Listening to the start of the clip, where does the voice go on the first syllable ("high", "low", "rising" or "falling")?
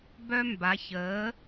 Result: high